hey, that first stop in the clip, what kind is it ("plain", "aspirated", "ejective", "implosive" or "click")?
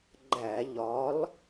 click